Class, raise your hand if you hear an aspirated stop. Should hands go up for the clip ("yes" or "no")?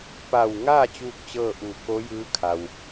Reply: yes